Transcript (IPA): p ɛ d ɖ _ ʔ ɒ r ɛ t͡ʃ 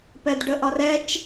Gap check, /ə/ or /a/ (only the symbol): ə